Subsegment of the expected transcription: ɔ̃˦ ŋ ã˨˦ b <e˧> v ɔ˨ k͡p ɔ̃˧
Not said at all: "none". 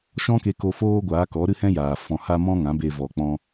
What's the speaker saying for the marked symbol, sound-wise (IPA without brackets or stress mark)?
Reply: e˧